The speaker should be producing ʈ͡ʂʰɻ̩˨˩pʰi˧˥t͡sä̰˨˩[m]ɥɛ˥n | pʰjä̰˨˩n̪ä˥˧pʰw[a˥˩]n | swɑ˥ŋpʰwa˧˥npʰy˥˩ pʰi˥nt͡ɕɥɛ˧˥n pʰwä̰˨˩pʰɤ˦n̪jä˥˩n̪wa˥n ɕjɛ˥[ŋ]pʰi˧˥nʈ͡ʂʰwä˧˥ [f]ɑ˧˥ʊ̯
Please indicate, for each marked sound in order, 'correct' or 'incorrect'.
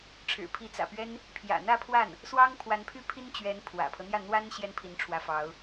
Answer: incorrect: p, correct, incorrect: n, correct

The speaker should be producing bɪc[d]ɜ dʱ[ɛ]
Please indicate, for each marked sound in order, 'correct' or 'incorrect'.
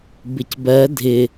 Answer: incorrect: b, incorrect: ɪ

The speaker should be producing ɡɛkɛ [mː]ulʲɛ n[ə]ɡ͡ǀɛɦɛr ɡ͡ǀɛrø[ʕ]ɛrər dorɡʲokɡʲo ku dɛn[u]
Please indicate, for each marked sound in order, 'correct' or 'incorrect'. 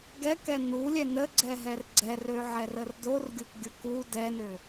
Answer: incorrect: n, correct, correct, incorrect: ø

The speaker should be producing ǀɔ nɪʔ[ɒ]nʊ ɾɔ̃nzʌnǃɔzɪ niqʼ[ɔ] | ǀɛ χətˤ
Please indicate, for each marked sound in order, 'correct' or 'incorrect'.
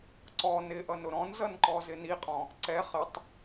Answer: incorrect: ʌ, incorrect: ɔ̃

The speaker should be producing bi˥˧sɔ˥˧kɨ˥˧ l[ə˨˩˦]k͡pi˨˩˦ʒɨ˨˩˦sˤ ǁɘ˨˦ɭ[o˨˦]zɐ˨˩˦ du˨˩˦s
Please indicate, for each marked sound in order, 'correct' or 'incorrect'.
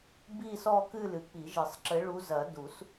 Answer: incorrect: ɨ˨˩˦, incorrect: u˨˦

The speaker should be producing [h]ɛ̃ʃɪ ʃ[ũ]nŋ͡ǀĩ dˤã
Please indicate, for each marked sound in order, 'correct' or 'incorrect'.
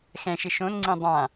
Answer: incorrect: x, incorrect: õ

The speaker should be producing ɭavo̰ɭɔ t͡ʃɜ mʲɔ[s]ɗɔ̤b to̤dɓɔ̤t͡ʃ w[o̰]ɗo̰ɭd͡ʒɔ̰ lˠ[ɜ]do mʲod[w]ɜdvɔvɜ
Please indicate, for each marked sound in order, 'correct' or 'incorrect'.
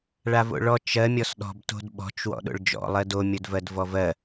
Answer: correct, incorrect: ɔ̰, correct, incorrect: v

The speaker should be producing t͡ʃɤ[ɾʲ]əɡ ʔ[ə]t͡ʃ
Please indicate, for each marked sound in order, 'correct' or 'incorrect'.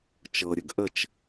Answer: correct, correct

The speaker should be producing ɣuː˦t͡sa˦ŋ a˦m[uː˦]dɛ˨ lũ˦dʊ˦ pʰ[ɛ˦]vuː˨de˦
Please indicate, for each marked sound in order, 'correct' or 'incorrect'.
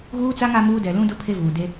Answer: correct, incorrect: e˦

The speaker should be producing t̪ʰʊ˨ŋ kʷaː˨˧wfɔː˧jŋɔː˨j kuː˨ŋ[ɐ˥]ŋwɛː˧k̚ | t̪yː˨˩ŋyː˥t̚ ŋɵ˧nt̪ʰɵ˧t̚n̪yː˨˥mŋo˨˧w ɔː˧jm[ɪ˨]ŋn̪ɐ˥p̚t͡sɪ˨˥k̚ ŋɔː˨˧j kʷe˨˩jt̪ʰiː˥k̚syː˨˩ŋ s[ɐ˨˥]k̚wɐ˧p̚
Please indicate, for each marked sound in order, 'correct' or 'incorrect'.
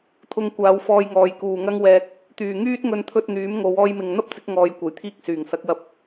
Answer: correct, correct, correct

